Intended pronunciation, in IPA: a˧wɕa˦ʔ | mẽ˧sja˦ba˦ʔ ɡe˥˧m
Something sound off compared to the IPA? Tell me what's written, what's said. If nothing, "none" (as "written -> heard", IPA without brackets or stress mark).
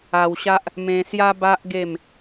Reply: none